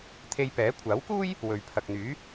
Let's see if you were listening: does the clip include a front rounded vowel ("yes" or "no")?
yes